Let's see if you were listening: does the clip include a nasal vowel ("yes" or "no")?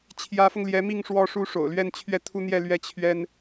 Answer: no